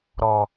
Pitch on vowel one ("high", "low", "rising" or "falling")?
low